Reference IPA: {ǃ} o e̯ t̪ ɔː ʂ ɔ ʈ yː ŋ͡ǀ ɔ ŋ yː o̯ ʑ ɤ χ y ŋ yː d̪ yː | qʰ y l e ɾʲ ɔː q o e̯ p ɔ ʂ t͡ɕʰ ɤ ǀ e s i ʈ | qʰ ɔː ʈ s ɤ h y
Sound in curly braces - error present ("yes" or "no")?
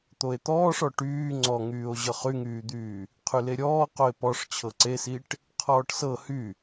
yes